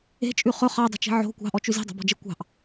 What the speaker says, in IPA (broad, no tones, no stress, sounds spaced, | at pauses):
e̤ t͡ʃʼ ʉ χ ɵ χ ɑ dˤ i̤ t͡ʃ i̤ ʕ o̤ kʷ ɑ̤ ʔ ɔ t͡ʃ ʉ z i̤ dˤ o̤ b ɔ̤ d͡ʒ e kʷ ɑ̤ ʔ